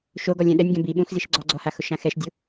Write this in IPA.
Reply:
ʃ o ɡ ɔ lʲ ɛ̃ ɗ ɛ nʲ ɡ ɛ̃ b i ɓ ũ x z i ʃ ɡ͡ǀ ɔ ɡ͡ǀ ɔ h a x ʊ ʃ ã x ɛ ʃ dʲ ʊ

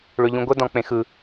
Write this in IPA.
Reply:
ɭ ø ʎ ũ ɡʷ ə d ɔ̃ k͡p ẽ x ɯ

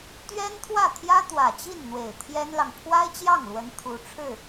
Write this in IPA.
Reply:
t̪ ɥ ɛ˥ n t̪ʰ w ä˥˩ t̪ʰ j ä˥ t̪ w ä˨˩ t͡ɕ i˥˩ n n̪ w e˨˩ ɪ̯ t̪ʰ j ɛ˥ n l ɑ˨ ŋ pʰ w a˥ ɪ̯ t͡ɕ j ɑ˥˩ ŋ l w ə˧˥ n t̪ʰ u˧˥ ʈ͡ʂʰ ɻ̩˥˩

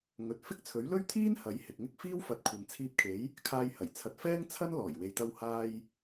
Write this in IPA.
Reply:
ŋ ɵ˨ t̚ f ɪ˥ k̚ t͡sʰ ɵ˨˥ ɥ l ɵ˥ ɥ t̪ʰ iː˥ n h ɐ˨˥ j h ɪ˨ k̚ ŋ ɪ˥ k̚ f iː˥ w f ɐ˨˥ t̚ kʷʰ ɐ˨ n t͡sʰ iː˧ p̚ kʰ e˨˥ j | kʰ aː˧ j h ɐ˨˩ j t͡sʰ ɐ˨˥ t̚ f ɛː˥ ŋ t͡sʰ ɐ˥ n l ɔː˨˩ j w e˨ j t̪ ɐ˧ w h aː˧ j

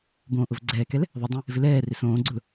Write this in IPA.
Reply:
b õː ʔ ʊ v ɡ͡ǀ ɛː k ɛ l | ðˤ ɪ dˤ ẽ | v ɪ l ɛː r ɪ s õː ɡ͡ǀ ʊ l

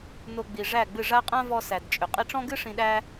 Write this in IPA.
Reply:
n o˧ ɡ͡b i˨ ʐ æ˦˨ ɡ͡b ɨ˦˨ ʐ a˦ qʼ ã˦ v ɔ˧ s æ˨ d t͡ʃʼ ʏ˨ qʼ i˧ ʈ͡ʂ ɔ̃˦ ɡ ɨ˦ ʂ ĩ˧ ɗ æ˦

